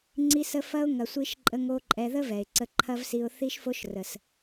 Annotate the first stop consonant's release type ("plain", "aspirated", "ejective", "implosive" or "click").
click